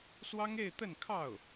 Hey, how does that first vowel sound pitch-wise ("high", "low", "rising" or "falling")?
high